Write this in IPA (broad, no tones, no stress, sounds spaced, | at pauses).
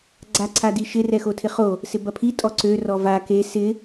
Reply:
ɡ͡ǀ a ǀʰ a d i ʃ ɪ r ɛ x o tʰ ɪ χ o | s ɪ b ɐ pʰ i tʼ ɔ ǀ ø r ɔ v a k e s ɪ